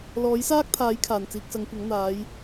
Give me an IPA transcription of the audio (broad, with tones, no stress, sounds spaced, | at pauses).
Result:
l ɔː˨˥ j s aː˥ k̚ t̪ʰ aː˨˥ j kʰ aː˨˩ n t͡s iː˨ k̚ s ɐ˨˧ ŋ kʷ ɐ˨˥ ŋ n̪ aː˨˧ j